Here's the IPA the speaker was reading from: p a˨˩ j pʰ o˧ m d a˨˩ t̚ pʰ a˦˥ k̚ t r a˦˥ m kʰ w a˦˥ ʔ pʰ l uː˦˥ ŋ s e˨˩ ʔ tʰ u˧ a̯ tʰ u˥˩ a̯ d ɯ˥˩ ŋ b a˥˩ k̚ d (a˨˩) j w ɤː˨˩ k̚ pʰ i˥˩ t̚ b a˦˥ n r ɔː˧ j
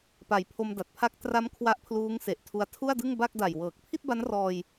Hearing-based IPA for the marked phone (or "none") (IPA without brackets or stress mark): a˨˩